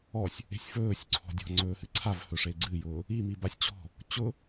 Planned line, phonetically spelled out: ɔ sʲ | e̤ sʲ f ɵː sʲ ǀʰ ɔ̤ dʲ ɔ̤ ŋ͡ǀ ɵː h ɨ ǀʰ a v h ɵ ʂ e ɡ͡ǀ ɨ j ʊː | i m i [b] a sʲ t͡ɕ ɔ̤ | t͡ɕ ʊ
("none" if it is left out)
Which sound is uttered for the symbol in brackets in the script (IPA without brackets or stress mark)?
b